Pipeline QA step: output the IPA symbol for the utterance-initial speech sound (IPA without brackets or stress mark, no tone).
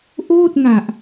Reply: ʔ